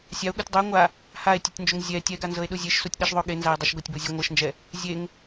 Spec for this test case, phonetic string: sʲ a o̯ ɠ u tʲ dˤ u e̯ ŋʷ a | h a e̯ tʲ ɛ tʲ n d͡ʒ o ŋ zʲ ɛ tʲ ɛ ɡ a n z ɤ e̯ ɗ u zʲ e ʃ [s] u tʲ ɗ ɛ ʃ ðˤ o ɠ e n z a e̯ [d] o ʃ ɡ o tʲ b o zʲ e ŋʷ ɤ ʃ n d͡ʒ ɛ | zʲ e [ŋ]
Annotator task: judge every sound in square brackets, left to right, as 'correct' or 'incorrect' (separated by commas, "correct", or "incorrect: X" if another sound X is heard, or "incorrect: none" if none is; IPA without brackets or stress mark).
correct, incorrect: dˤ, correct